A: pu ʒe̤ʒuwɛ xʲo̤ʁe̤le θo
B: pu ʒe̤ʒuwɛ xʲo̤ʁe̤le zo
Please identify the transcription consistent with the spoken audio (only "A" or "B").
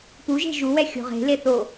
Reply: A